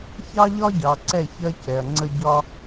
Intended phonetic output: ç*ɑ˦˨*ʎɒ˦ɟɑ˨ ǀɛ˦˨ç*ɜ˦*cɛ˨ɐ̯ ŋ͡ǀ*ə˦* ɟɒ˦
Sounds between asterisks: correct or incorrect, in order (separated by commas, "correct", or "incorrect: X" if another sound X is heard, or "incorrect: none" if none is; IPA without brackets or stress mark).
incorrect: ɑ˦, correct, correct